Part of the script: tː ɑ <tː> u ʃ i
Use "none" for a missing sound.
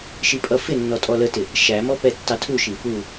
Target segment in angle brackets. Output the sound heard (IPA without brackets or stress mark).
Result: tʰ